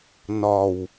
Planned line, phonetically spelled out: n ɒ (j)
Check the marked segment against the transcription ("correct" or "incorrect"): incorrect